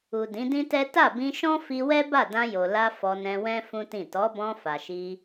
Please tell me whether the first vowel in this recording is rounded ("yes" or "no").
yes